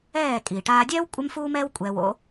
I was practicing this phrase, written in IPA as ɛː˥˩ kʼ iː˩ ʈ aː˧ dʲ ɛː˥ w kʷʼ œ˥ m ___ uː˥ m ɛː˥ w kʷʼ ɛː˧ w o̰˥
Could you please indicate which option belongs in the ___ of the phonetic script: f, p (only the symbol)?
f